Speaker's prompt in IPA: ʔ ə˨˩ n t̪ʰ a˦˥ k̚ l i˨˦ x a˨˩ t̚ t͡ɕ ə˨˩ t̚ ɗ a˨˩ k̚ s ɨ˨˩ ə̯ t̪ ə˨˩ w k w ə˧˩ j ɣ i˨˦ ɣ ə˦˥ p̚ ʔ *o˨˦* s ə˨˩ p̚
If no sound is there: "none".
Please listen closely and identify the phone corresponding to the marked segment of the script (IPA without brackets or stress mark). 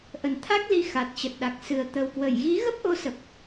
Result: o˨˦